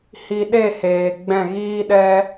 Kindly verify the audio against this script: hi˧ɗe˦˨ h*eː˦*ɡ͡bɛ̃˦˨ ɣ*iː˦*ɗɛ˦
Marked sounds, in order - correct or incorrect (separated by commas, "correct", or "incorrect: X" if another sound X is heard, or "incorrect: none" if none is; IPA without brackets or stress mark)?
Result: incorrect: eː˨, correct